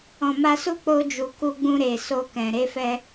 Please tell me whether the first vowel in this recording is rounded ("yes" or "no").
yes